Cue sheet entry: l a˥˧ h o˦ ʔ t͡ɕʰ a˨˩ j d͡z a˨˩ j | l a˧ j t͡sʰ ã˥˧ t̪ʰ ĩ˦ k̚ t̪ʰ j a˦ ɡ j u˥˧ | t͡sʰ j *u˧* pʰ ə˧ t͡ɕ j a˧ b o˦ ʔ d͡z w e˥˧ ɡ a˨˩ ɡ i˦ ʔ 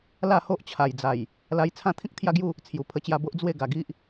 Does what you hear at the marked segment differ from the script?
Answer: yes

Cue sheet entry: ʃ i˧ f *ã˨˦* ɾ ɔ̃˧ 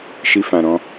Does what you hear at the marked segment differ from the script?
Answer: yes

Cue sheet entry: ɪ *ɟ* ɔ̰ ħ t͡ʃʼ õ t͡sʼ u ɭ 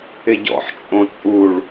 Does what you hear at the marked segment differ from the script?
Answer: no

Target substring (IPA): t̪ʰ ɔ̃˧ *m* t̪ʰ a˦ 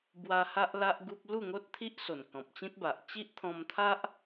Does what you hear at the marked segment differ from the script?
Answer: no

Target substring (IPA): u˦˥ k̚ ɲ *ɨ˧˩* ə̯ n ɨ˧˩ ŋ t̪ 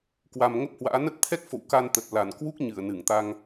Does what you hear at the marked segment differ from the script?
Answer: no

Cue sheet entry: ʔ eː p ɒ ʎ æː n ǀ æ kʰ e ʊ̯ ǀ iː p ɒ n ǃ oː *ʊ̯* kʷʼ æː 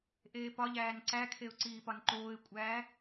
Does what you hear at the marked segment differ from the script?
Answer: yes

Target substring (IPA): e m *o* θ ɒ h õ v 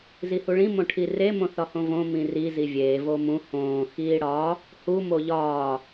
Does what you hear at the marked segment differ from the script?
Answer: yes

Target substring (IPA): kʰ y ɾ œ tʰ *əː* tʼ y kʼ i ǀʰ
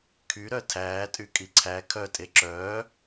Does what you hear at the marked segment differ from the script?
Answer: yes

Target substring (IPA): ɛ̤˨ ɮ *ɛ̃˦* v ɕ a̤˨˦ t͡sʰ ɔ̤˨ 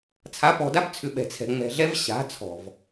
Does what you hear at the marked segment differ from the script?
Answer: yes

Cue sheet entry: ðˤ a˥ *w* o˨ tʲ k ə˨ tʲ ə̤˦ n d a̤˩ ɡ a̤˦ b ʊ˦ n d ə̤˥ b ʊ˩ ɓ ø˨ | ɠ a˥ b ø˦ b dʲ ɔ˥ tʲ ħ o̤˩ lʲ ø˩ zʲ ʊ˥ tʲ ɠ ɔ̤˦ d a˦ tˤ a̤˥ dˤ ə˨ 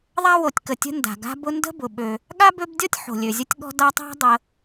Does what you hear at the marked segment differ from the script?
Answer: no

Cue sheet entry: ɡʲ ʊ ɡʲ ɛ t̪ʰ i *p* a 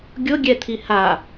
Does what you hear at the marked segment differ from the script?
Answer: yes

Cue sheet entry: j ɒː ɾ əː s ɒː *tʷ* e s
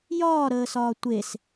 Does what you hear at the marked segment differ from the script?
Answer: no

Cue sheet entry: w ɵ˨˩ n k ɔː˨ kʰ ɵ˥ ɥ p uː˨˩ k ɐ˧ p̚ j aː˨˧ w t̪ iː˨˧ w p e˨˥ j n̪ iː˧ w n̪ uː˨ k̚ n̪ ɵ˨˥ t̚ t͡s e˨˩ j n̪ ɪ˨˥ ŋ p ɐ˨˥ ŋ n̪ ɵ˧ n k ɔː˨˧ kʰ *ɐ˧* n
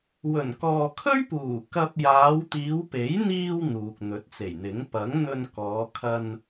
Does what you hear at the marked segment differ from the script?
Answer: no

